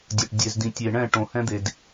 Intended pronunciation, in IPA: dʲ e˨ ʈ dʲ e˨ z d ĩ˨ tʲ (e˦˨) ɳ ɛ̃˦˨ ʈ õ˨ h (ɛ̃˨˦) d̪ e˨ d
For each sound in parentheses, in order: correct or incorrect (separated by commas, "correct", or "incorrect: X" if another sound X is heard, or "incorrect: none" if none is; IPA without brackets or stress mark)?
incorrect: e˨, incorrect: ɛ̃˦